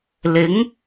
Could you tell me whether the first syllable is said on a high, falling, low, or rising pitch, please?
rising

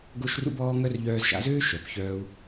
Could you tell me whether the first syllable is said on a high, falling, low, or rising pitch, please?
high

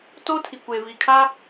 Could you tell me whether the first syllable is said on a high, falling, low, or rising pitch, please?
high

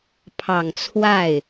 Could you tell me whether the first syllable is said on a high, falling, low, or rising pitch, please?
low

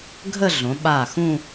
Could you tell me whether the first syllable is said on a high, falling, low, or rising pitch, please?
falling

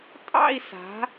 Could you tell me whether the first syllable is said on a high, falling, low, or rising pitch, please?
falling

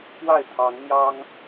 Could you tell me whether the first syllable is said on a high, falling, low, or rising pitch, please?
falling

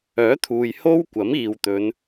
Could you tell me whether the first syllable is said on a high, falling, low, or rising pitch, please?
rising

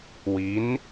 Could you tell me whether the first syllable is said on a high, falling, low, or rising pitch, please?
rising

